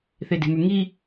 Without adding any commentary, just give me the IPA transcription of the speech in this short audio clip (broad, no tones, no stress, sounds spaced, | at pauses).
θ e d e̤ m ʉ ŋ i